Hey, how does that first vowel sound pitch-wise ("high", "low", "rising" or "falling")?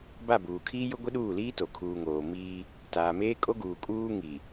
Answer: falling